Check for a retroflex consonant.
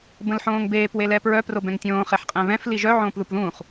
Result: absent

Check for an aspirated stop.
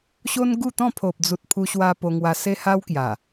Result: present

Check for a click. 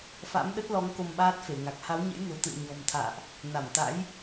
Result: absent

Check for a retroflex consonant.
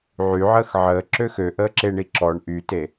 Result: present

